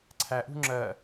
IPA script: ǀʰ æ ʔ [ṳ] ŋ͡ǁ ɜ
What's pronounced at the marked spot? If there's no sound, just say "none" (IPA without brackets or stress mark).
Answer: ṳ